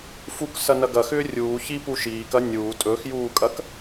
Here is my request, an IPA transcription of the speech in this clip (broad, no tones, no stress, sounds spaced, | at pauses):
f u k s ɐ n ɐ ɡ ɐ x ʏː rʲ uː ç i p u ʃ iː k ɐ nʲ uː tʼ ɵ x j uː kʼ ɐ k